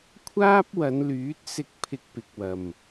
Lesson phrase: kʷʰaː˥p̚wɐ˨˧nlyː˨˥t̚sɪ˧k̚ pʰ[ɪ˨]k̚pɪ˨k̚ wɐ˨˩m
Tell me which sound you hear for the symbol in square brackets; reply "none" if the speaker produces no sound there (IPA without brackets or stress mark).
ɪ˧